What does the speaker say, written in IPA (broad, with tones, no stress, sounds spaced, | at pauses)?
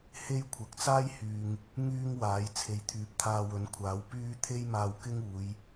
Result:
h e˥ j kʷʰ ɐ˨ k̚ t͡s aː˥ j h yː˨ ŋ | ŋ yː˥ ŋ w aː˨˥ j t͡sʰ e˨ j t̪ʰ yː˨ p̚ t̪ʰ aː˧ w ɵ˨˥ n kʷʰ aː˨˥ w p yː˥ t̪ʰ e˥ j m aː˧ w k ɪ˥ ŋ uː˨˧ j